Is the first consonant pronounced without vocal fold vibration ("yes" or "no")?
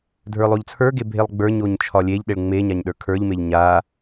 no